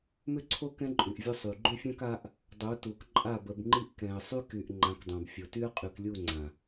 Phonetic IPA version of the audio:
m ʏ˦˨ ǀʰ o˦ k ɛ̃˦ ǃʼ y˨ ʔ vʲ o˦ sˤ y˨ ɡ͡ǃ ʏ˦ fʲ ã˦ k a˦ ʔ | dˤ u˨˦ t u˨ k ǃʼ a˦˨ b ə˨ b ŋ͡ǃ i˦ ʔ k ɛ̃˨ ə̯ sˤ y˦ k y˨ ʔ ŋ͡ǃ ã˨˦ k dˤ ã˨ b fʲ o˨ t y˦ ə̯ qʼ y˨ k lʲ u˦˨ ŋ͡ǀ ã˨

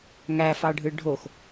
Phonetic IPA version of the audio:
ŋ æ f ɑ ɖʱ ɯ ɖʱ o x

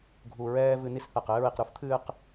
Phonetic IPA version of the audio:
ɡʱ u˨ ɹ ɛː˧ v ɨ˧ n i˦ s θ ɛ˨ q ɘː˧ ɹ i˨ q ɾ u˨˦ f t̪ʰ ɨː˧ q

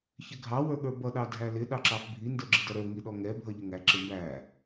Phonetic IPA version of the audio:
ç ɪ ɡʱ ɑ w ə˞ ɠ ə˞ b ʌ ɗ ɑ dʱ æ l ɪ ɗ ɑ ǁ ɑ f bʱ i n d ə˞ ɡ͡ǁ ɪ d ʌ ɾ ə˞ ŋ i ɗ ɔ ŋ ɛ bʱ ʌ ʎ ɪ ŋ æ ǁ ɪ m b æ

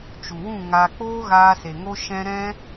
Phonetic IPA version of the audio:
t͡ʃ u˨ w ũ˦˨ ŋ aː˧ k͡p oː˦ ɣ aː˧ s e˨ ŋ o˦ ʃ ɛ̃˦ ɾ ɛ̃˦

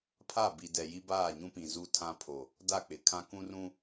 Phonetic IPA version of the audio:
pʰ a˦˨ b i˨ d ɛ˨ j i˦ b aː˦˨ ɲ ũ˦ p ĩ˨ z u˦ tʰ ã˦ pʰ o˨ | d a˦˨ k͡p ɪ˨ kʰ ã˦ k ũ˦ r ũ˦

